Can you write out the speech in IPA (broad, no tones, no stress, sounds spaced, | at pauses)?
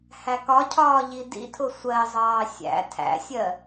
h æ k ɒ cʰ ɒː ʎ i d ḭ tʰ ʊ sʷ ɜ zˤ ɑː sʲ æ̰ tʰ æ̰ sʲ ɜ